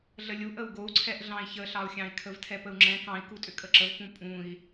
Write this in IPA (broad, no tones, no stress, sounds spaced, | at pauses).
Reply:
ɮ ə lʲ u ʔ ə u̯ ɡ o u̯ ǀʰ ɛ ʔ ɮ ɑ̃ i̯ ç ə ɬ ɑ u̯ xʲ ɑ̃ i̯ kʰ ə v tʰ ɛ p ə u̯ ŋ͡ǁ ɛ̃ k ɑ̃ i̯ k u tʼ ʏ kʼ ə ǁ ə v p ũ pʼ ũ i̯